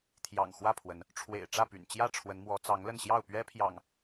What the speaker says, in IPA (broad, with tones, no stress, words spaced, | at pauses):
t̪ʰjɑ̰˨˩ŋ xwä˥˨pʰwə˨˦n | ʈ͡ʂʰwḛ˨˩ɪ̯ʈ͡ʂä˥˨py̰˨˩nt͡ɕjä˥˨ ʈ͡ʂʰwə˨˦nmwɔ˨˦ t͡sɑ˨˦ŋlə˥˨nɕjɑ˥˨ʊ̯pɥɛ˦ pʰjɑ̰˨˩ŋ